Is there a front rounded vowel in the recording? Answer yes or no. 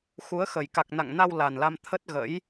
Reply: no